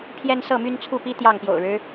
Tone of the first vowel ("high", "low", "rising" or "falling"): high